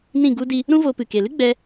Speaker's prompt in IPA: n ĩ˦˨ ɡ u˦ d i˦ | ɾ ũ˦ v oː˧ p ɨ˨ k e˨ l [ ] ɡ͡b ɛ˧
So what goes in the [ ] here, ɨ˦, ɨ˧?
ɨ˦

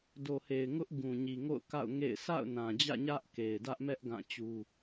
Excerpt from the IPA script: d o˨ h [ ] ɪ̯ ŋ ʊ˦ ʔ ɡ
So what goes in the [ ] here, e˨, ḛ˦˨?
e˨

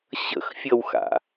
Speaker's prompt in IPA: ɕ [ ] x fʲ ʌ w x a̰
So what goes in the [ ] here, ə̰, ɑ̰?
ə̰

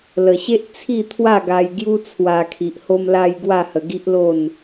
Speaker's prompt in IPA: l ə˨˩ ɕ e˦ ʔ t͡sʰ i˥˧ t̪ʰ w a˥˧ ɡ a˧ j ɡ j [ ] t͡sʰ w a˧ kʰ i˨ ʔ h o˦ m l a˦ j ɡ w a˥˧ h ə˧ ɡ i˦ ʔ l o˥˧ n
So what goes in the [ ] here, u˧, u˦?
u˦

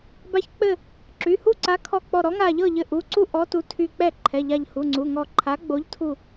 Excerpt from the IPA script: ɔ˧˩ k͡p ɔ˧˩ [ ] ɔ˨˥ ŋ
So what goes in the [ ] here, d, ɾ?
ɾ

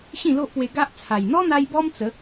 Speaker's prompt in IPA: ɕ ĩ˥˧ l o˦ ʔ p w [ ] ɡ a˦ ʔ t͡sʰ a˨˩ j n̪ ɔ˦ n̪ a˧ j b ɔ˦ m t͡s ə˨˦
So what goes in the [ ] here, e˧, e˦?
e˧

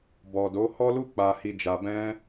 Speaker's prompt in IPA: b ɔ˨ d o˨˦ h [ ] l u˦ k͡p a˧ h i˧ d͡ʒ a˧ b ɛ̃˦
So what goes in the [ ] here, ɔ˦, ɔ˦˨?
ɔ˦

